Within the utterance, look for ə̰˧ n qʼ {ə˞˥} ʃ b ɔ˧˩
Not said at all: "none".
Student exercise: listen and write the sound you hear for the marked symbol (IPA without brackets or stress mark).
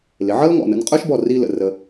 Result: ə˞˥